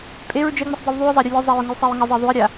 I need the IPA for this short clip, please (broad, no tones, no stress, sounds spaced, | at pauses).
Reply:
pʼ e ɹ d͡ʒ ɛ ŋ͡m ə sˤ b e w ðˤ y ʊ̯ zˤ a ɾʲ u lʲ ɛ zˤ a ɹ ŋ u sˤ a ɹ ŋ ə zˤ e ðˤ u ə̯ ɾʲ a